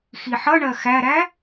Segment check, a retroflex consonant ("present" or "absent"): present